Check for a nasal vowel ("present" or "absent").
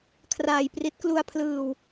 absent